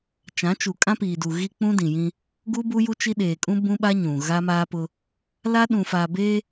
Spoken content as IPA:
t͡ʃ ã˨˦ t͡ʃ u˨ kʼ ã˦ p iː˨ d u˨ ɣ i˦ k͡p ũ˦ d ĩ˨ j ĩ˦ | ɡ u˦ b u˦ j u˦ t͡ʃ i˦ ɗ eː˨ kʼ ũ˦ b ũ˦ ɓ a˦ ɲ ũ˨ ɣ a˦ m aː˦ p ʊ˦ | l a˦ ɗ ũ˨ f a˨ b eː˦

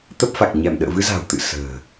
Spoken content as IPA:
t̪ ə˦˥ p̚ f a˨˩ k̚ ɲ ɛ˧˩ m ɗ ə̰ː˧˨ v ɨ˧ z a̤˨˩ w t̪ ɨ̰˧˨ s ə̤ː˨˩

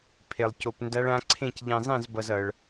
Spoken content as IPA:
pʰ e˧ lˠ c o˧ p n d a˦˥ ɭ ã˦˥ ǀʰ ẽ˥˧ c ʎ ẽ˧ zˤ ẽ˥˧ z b ʌ˧ z ʌ˧ ɭ

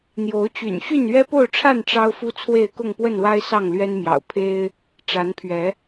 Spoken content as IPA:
n̪ j o˨˦ ʊ̯ t͡ɕ y̰˨˩ n ɕ y˥˨ n ɥ ɛ˦ p o˥˨ ʊ̯ ʈ͡ʂʰ a˥˨ n ʈ͡ʂ ɑ˦ ʊ̯ f u˦ t͡sʰ w e˥˨ ɪ̯ k ʊ˥˨ ŋ p w ə˥˨ n w a˦ ɪ̯ s ɑ˥˨ ŋ l ɥ ɛ˦ n m j ɑ̰˨˩ ʊ̯ pʰ e˦ ɪ̯ | ʈ͡ʂ a˨˦ n pʰ ɥ ɛ˨˦

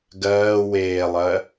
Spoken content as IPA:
ɡ ɜː w eː lˠ ɜ

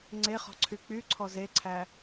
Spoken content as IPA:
ŋ͡ǀ e χ ɔ̤ ǀʰ y k͡p y ǀʰ ɔ z e ǀʰ æ

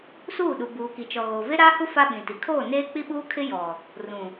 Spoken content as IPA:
s uː˦˨ ɗ u˨ b uː˨ k i˨ t͡ʃ ɔ˨ ɣ oː˨ v e˦ ɾ aː˦ h u˦ f a˦ ɓ ĩ˨ t i˨ kʰ oː˦˨ n eː˦ k͡p i˦ ɓ uː˦ kʰ ɪ˦ j ɔ˨ | r ũ˨

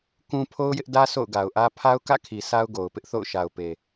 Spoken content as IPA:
k ũ˦ pʰ o˦ ʊ̯ j ɪ˦ ʔ d ä˦ s o̰˦˨ ʊ̯ ɡ a˨ ʊ̯ ʔ ä˦ pʰ a˦ ʊ̯ k ä̰˦˨ kʰ i˨ s a˦ ʊ̯ ɡ o˨ ʊ̯ p ɪ˦ ʔ θ o̰˦˨ ʊ̯ ʃ a˨ ʊ̯ p e˨

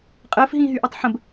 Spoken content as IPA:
qʼ əː f ɦ ĩː ɦ y ʔ ɔ tˤ ħ ə̃ b

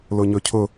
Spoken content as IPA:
l ʊ ɲ ɵ cʰ ʊ

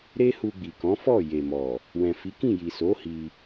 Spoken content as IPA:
ɾ e˦ h u˧ ɡ͡b i˨ k ɔ̃˨˦ f ɔ˦˨ j e˨ m ɔ˨ | w ɛ̃˨ f i˨˦ k ĩ˦˨ j i˨ s o˨˦ h i˧

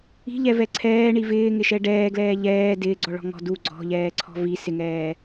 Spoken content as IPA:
i̤ ʎ ɛ v ɛ ǀʰ ɛː ɳ i v ɪː ŋ ɪ ʃ ɛ ɖ ɛː ɡ l ɛː ʎ ɛː d ɪː ɡ͡ǀ ɔ ɭ ɔ̤ ŋ ɔ̤ d u ɡ͡ǀ ɔ̤ ʎ ɛː ǀʰ ɔ̤ v i s ɪ ŋ ɛː

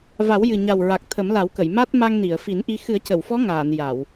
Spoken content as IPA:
v a˨˩˦ w j ɨ˨˩ ɲ a˨˩ w ɹ a˨˩ k̚ t̪ʰ ə˨˩˦ m l a˨˩˦ w k ə˨˩˨ j m a˦˥ t̚ m a˧ ŋ n i˨˩˨ ə̯ f i˨˩˦ n ʔ i˧ x ɨ˨˩˦ ə̯ c ə˨˩˨ w f ɔ˧˥ ŋ aː˨˩˨ n j a˨˩˨ w

